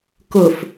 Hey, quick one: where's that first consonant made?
velum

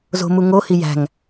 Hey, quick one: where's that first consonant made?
tongue tip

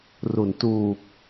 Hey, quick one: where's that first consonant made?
tongue tip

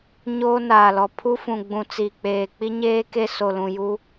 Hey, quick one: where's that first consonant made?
palate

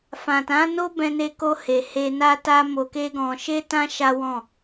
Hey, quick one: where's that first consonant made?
lips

